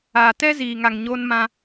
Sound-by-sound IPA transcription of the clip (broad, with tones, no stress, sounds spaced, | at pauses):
a˨ t ɛ˦ z iː˨ ŋ a˨ ŋ ɲ oː˦ n m ã˦